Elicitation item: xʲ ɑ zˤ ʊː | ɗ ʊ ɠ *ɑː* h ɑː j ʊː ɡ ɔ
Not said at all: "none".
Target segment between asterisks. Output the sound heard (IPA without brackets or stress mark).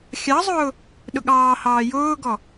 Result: ɑː